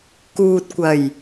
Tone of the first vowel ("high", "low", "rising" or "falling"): low